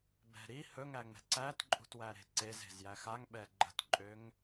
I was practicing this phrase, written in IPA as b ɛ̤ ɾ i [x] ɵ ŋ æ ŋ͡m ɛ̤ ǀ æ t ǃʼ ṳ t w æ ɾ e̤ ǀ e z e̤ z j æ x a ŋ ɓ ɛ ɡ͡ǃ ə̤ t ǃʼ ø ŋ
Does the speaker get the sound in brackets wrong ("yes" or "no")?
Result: yes